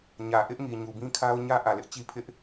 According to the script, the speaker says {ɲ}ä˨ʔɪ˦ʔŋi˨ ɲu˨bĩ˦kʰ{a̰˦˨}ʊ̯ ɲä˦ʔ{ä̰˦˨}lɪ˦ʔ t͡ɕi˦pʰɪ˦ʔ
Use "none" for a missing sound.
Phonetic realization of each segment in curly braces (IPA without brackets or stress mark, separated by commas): ɲ, a˦, ä˨